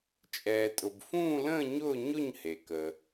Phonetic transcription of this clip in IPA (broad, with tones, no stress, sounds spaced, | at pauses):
t͡ʃʼ ɛː˩ tʼ ʊ˩ b f ũː˥˧ l ə̃ː˥˧ ɲ ʊː˥˧ ɲ ʊ˥˧ ɲ h e˩ k ə˩